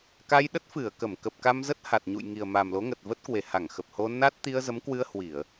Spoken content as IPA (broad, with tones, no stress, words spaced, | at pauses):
ka˧jɗə˦˥t̚fɨ˧˩ə̯kə˧˩m kə˨˩p̚ka˧mzə˦˥t̚ ha˨˩t̚ɲṵ˧˨jŋi˨˩ə̯ ma˨˩m lo˨˦ŋə˨˩t̚və˦˥t̚kwe˨˩ ha˧˩ŋxə˨˩p̚ho˧ na˦˥t̚ t̪i˧ə̯zə˨˦mkwɨ˧ə̯ hwi˧˩˨ə̯